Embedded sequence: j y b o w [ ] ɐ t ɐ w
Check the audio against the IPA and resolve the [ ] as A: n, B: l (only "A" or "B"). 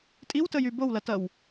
B